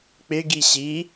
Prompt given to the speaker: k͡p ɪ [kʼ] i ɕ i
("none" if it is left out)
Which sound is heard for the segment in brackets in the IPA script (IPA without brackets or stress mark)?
ɡ